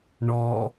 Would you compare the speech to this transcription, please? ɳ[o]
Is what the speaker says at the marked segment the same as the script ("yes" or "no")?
no